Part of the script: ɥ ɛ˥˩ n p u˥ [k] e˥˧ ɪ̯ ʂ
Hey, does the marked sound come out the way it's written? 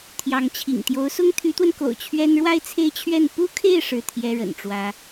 no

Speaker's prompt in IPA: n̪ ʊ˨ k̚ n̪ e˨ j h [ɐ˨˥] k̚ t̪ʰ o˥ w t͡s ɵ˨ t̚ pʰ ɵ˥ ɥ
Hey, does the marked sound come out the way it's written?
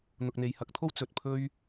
yes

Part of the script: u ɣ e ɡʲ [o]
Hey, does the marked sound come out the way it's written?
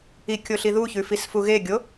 yes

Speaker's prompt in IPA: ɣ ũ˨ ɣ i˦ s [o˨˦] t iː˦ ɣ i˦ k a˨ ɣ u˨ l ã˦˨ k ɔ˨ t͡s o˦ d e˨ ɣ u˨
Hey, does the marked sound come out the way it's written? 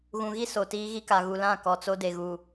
no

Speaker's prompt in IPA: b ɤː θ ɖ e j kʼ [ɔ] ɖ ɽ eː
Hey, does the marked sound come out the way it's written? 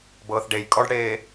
yes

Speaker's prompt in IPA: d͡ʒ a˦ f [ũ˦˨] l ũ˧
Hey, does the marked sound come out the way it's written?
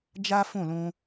yes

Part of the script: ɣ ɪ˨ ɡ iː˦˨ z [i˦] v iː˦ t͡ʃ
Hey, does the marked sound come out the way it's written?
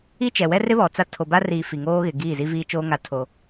yes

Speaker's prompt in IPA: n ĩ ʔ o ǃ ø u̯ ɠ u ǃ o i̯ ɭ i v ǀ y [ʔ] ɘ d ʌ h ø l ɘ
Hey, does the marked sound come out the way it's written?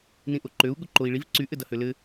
yes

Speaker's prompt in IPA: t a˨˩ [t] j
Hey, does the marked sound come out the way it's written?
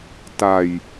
no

